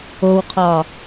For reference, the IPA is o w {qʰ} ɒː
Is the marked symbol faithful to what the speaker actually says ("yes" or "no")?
yes